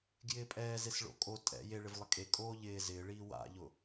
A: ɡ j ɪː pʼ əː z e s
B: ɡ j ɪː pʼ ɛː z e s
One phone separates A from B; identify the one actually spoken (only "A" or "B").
B